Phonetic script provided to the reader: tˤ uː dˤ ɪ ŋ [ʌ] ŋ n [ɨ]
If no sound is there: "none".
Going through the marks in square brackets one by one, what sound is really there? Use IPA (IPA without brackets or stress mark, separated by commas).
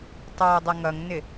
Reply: ʌ, ɪ